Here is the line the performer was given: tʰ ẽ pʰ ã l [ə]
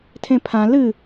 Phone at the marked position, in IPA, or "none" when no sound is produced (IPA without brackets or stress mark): ɨ